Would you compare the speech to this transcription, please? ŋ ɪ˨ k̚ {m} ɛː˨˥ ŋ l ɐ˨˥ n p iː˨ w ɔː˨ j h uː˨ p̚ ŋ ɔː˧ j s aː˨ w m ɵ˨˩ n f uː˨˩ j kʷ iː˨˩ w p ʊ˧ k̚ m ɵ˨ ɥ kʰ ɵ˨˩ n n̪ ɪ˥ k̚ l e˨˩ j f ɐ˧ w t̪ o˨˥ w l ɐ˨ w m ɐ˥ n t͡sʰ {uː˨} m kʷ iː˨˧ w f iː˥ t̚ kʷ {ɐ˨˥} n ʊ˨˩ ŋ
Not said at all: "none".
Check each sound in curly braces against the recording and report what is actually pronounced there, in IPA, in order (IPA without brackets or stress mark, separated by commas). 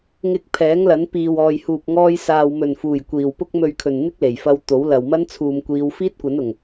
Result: pʰ, uː˨, ɐ˨˥